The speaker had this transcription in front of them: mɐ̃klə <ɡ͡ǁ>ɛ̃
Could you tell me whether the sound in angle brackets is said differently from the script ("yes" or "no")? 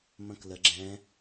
no